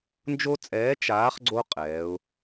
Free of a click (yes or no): no